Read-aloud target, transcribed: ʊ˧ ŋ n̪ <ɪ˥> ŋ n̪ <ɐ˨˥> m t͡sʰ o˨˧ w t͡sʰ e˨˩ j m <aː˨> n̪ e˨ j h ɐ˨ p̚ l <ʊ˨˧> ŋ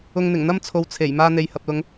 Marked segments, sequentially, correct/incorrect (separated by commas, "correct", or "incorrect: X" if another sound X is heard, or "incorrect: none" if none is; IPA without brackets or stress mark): incorrect: ɪ˨˩, incorrect: ɐ˥, incorrect: aː˧, correct